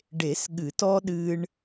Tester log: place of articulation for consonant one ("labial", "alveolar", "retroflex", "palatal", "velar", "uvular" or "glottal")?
retroflex